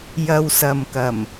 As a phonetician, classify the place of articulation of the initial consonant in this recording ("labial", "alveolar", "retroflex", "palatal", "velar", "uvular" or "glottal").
palatal